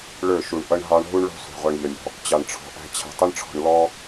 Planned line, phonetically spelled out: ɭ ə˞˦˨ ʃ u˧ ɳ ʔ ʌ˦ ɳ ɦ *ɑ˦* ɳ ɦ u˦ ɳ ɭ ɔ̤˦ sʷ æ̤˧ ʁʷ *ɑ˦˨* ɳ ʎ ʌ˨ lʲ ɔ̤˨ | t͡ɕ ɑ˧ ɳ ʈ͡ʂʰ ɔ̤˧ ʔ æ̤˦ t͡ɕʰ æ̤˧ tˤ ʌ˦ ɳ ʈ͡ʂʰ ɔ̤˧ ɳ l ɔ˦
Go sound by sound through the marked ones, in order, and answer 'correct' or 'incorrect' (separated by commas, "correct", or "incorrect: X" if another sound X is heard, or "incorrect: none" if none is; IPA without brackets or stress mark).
correct, incorrect: ɑ˧